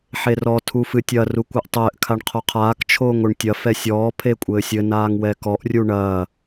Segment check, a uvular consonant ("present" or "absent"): present